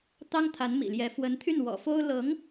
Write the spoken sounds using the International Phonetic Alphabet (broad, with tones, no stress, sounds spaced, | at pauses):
t̪ ɑ˥ ŋ t̪ʰ a˧˥ n m ḭ˨˩ l j ɛ˧˥ f w ə˧˥ n t̪ʰ y˥˩ n w ɔ̰˨˩ f o˥ ʊ̯ l ɤ˧˥ ŋ